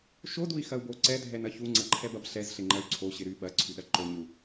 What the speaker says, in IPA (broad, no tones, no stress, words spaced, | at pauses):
ʃodui̯xɐu̯bo ǀɛdʱɛnɐ çuŋ͡ǀɐǃʰɛbɐb ɬɛzɬɪŋ͡ǃɐy̯ ǀʰoɕɪ ɾy ɓɐǀʰyɗɐ ǃoɲu